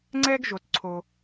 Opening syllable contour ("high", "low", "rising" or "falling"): high